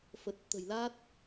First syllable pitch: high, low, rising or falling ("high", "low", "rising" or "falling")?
low